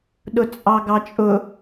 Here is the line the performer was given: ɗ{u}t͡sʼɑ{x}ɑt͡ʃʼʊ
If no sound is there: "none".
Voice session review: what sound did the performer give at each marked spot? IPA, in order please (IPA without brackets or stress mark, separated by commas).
ʊ, ɡ